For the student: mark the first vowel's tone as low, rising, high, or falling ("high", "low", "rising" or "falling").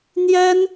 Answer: high